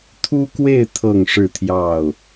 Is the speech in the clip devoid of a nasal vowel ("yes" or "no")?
yes